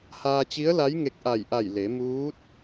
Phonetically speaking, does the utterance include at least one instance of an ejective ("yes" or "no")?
no